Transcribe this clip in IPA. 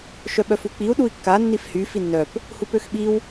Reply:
ʃœɓœfuk͡piu̯ ɗui̯kːa nːifhy finːœp | hupøxɓiw

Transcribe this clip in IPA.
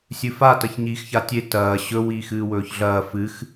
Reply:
sʲɨfa tɐçɲiːxçatʲe tɐː ɕɵ wiːxɨːwɵːçɮɐː fɨx

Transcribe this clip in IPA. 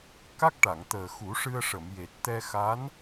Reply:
ka˦˥k̚ʈa˨˩˨ŋt̪əː˨˩ xu˨˩˦ʂɨ˧ə̯ʂə˨˩˨mje˨˩t̚ t̪ɛ˧xa˧˥n

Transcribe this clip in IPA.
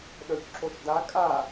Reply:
ɗœçǁoʃda kʼa

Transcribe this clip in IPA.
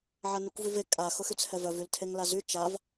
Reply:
ʕanykʷvyve kʼa xʊxyt͡shɛvœv yltʰeŋlazy t͡ʃav

